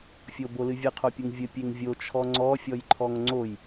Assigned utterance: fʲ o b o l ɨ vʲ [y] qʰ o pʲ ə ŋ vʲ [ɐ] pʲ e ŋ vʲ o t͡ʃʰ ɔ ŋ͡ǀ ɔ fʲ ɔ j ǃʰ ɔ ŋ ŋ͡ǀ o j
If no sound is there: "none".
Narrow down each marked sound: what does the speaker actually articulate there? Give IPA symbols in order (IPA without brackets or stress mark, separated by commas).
ɨ, ə